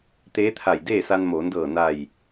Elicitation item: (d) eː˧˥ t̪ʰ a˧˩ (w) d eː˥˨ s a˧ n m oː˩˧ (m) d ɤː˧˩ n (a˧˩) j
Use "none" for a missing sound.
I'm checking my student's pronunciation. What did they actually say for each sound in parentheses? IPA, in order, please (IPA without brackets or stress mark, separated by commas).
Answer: t̪, j, n, a˧˩